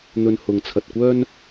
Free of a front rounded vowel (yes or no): no